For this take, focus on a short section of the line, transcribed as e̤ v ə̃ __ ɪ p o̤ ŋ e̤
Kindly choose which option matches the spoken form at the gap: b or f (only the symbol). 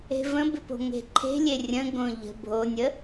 b